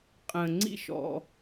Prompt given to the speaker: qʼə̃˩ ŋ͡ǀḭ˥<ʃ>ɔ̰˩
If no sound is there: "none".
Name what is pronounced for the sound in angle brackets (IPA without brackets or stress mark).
ʃ